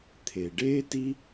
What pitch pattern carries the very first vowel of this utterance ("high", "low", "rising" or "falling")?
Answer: low